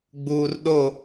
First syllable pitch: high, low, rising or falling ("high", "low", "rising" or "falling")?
low